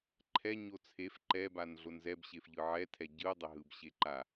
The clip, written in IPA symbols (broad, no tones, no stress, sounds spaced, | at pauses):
ǃʰ ɛ ɲ o t͡sʰ e f ǃ ɛ b a n ɮ o n z ɛ b ɕ e f ʎ ɯ ʕ ɛ tʰ ɛ ɟ ɯ dˤ ɛ ɦ ɯ b ɕ e ǃ a